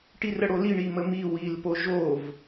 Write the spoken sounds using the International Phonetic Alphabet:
ʈ i r ə ɽ o l i ɳ i m ə m i w i l p o ʒ o v

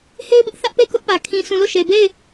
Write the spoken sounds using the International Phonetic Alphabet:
h e˦ ɪ̯ b ɪ˦ ʔ θ ä˦ ʔ p e˦˨ k ʊ˦ ʔ p ä˨ kʰ ĩ˨ sʰ ũ˨ l o˦˨ ʃ e˨ b e˦˨ ɪ̯

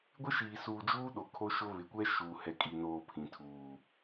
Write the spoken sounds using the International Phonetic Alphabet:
ɡʷ ɪ˦ ʃ iː˨ s uː˨ d͡ʒ uː˦ ɗ o˨ kʰ o˦ ʃ ʊ˦ β ɪ˨ kʷ ɛ˦ ʃ uː˨ h ɛ˨ kʼ i˨ n oː˨ pʰ ĩ˨ tʰ uː˨

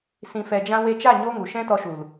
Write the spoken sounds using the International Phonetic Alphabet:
s ĩ˨ f ɛ˨ d͡ʒ ã˧ w e˧ t͡ʃ a˦˨ ɲ o˦ ŋ u˨ ʃ ɛ̃˦ t ɔ˧ ʃ u˨ l

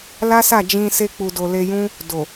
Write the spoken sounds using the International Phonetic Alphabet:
l a˦ s a˦˨ d͡ʒ ĩ˧ s e˧ k͡p u˨ d o˨ l e˧ j ũ˦ | d o˨

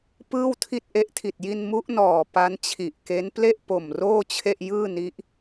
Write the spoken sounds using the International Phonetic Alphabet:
p ɯː˥˩ w tʰ i˥˩ t̚ ʔ e˦˥ ʔ tʰ i˨˩ t̚ j i˧ n m u˦˥ ʔ n ɔː˨˩ p a˦˥ n t͡ɕʰ i˨˩ ʔ k e˦˥ n p l e˥˩ ʔ p o˨˩ m r oː˥˩ t͡ɕʰ e˥˩ ʔ j ɯː˥˩ n i˦˥ ʔ

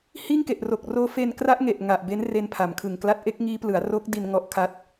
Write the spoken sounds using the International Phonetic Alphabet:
h iː˥˩ ŋ k e˨˩ ʔ r o˨˩ k̚ r oː˦˥ f e˧ n k r a˦˥ ʔ ŋ e˨˩ ʔ ŋ a˨˩ ʔ b e˦˥ n r e˧ n pʰ a˩˦ m kʰ ɯ˨˩ ŋ k l a˦˥ t̚ ʔ e˦˥ k̚ ŋ iː˦˥ p l ɯ˩˦ a̯ r oː˦˥ k̚ d i˧ n ŋ ɔ˦˥ ʔ kʰ a˦˥ t̚

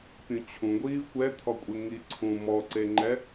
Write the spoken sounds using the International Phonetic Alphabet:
pʲ ũ t͡ɕʰ ũ ɡʷ iː v kʷ ɛ t̪ʰ ɔ kʷʼ e ŋ i ǀʰ ũ m ɔ ǀ e ŋ͡ǃ ɛ

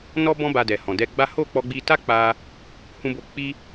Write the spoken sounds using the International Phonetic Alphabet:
n ɔ˦ b ɔ̃˦ b a˧ d ɛ˨ h ɔ̃˨ d ɛ˧ ɡ͡b a˦ h o˦˨ k͡p ɔ˧ ɡ͡b i˧ t a˦ k͡p a˧ | h ũ˧ b o˧ k͡p i˦

